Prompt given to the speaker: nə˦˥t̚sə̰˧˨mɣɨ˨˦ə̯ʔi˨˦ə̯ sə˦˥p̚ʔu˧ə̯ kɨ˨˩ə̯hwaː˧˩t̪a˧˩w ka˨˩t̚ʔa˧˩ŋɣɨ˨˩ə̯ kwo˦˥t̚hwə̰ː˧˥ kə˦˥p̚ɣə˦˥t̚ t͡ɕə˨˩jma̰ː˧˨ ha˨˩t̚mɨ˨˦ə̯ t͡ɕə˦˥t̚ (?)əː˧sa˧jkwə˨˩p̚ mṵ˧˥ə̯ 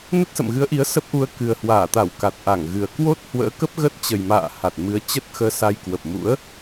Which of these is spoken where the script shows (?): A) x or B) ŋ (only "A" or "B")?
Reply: A